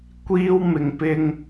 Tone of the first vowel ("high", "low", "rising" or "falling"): high